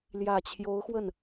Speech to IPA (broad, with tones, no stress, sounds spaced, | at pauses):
l j ä˨˩ t͡ɕʰ j o˧˥ ʊ̯ x w ə˥˩ n